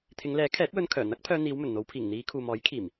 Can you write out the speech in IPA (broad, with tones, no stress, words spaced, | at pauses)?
t̪ʰɪ˨˧ŋlɛː˨˥kʰɛː˨˥t̚wɵ˧n kʰœː˨˩n̪ɐ˥k̚pʰœː˧ n̪iː˨˧wmɵ˨˩nn̪o˨˧wpʰiː˨˩ŋ n̪iː˨˧ kʰuː˨mɔː˨˥jkʰiː˨˩m